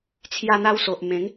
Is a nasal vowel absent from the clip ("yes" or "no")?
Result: no